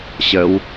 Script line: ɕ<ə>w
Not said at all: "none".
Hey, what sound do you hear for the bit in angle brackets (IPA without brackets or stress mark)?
ə